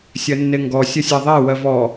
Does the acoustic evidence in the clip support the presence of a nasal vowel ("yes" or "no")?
no